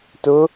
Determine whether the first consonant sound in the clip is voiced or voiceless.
voiceless